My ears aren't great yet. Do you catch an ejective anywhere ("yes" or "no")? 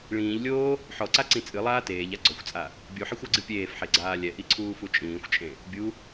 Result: yes